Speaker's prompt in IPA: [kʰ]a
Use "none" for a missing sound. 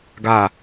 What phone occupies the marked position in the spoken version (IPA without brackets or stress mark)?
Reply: ɡ